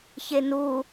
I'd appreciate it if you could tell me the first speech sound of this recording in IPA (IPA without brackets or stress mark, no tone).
ç